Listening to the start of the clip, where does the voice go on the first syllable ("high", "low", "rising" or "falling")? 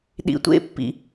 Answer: low